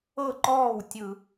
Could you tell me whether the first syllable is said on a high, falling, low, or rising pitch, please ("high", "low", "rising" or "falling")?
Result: falling